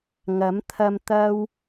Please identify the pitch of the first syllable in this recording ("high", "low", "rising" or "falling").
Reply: rising